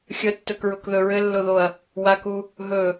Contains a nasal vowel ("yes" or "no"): no